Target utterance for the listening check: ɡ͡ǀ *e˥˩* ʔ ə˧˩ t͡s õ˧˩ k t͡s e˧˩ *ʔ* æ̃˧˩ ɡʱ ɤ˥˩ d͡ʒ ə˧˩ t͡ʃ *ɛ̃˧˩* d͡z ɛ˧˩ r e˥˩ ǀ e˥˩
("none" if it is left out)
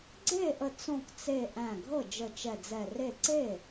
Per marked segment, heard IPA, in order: e˥˩, ʔ, ɛ˧˩

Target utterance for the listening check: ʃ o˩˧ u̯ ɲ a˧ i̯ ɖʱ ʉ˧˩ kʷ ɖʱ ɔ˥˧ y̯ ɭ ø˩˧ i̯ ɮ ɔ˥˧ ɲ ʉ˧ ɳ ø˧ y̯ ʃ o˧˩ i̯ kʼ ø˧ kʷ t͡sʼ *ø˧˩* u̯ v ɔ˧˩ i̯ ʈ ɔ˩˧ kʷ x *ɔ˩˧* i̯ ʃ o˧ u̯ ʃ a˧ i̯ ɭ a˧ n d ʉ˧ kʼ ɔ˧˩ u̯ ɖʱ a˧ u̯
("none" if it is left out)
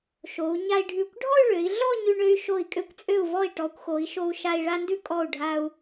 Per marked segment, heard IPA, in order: ø˧˩, o˩˧

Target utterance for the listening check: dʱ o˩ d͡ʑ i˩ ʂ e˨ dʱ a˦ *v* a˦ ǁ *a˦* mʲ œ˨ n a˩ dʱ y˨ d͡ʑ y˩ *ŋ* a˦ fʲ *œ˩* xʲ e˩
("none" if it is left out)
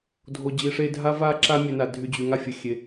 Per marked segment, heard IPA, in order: v, a˦, ŋ, ə˩

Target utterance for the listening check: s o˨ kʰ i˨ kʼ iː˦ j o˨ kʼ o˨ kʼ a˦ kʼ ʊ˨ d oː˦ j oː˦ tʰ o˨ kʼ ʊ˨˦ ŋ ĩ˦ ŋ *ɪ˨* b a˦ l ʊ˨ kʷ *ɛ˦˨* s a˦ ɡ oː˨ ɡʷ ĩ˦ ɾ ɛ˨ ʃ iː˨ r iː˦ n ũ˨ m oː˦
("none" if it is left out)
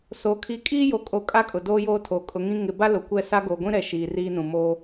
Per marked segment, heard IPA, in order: ɪ˨, ɛ˦˨

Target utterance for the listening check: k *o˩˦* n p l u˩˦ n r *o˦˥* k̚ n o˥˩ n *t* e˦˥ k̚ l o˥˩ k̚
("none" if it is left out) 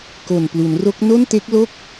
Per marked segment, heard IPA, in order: o˨˩, o˦˥, t

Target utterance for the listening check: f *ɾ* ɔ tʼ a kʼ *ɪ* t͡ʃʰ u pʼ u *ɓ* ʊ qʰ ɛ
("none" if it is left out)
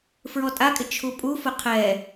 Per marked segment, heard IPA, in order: ɹ, ɪ, f

